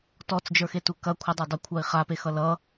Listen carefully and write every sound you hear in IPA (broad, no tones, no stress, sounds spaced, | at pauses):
t ɔ t͡s d͡ʒ ə˞ x e t u k ɐ kʷʰ ə dˤ æ dˤ u kʷʰ a i̯ χ a p e x ʌ l ʌ